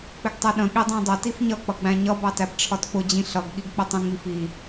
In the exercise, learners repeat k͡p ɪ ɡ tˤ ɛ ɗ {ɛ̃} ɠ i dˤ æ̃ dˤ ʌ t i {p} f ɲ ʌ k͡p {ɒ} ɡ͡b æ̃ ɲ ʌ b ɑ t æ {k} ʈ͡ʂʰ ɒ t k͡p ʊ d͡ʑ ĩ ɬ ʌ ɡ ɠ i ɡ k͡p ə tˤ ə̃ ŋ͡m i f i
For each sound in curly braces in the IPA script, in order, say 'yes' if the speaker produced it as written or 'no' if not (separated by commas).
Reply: no, no, no, no